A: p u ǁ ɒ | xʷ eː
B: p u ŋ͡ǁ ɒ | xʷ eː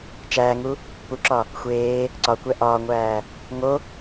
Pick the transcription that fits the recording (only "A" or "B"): A